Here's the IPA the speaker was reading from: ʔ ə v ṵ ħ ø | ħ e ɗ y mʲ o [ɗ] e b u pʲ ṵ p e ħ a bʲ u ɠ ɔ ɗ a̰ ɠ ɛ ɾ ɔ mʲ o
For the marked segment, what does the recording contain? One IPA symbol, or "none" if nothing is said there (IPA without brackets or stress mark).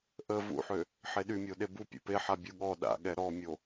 ɗ